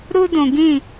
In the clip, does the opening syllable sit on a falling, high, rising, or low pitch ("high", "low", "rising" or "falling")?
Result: high